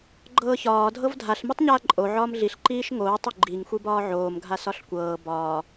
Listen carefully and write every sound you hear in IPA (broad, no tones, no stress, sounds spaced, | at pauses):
ɡ͡ǃ ɤː ç ɒː dʱ ɤ v dʱ a ɬ m i tˤ ɲ aː ǃʼ o ʕ ɒː m ɮ i ɬ ǃ iː ʃ ŋ oː tˤ ʏ ɡ͡ǃ i ŋ xʷ i b ɒː ʕ oː m ɡʱ a s ɒ ɬ kʷ ɤː b ɒː